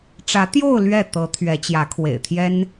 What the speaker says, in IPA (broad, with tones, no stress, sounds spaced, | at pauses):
ʈ͡ʂ ä˧˥ t̪ j o˥˧ ʊ̯ l ɥ ɛ˥˩ t̪ ɤ˧˥ t̪ʰ ɥ ɛ˧˥ t͡ɕ j ä˧˥ kʰ w ḛ˨˩ ɪ̯ t̪ʰ j ɛ˥ n